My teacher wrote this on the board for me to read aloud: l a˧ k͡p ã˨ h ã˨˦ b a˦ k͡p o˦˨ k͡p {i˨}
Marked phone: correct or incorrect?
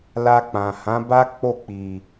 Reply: correct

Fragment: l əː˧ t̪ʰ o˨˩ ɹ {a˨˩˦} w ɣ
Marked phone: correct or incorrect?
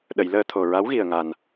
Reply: incorrect: a˧˥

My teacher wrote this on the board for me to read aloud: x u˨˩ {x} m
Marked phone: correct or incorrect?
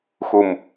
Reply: incorrect: none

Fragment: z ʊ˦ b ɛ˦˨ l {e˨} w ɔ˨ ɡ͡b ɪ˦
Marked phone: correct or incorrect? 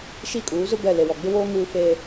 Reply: correct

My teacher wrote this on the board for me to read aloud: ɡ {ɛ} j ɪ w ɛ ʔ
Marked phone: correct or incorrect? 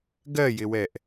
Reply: incorrect: ɜ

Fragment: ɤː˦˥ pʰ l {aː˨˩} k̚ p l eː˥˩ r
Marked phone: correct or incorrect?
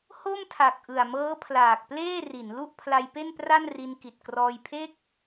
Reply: correct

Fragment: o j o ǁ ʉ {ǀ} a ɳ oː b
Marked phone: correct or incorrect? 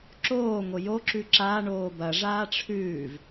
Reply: incorrect: ǁ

